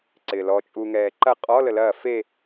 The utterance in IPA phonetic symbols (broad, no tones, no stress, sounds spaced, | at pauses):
ǀ ɪː l ɔ t͡ʃʼ u ŋ ɛː ǃ ɐ qʼ ɔ l ə l ɐː f e